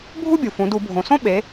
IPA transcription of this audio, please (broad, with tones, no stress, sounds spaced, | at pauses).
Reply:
bʱ u˥ bʲ u˩ f ũ˩˧ d u˧˩˧ bʱ õ˩ s õ˥ ɓ e˩˧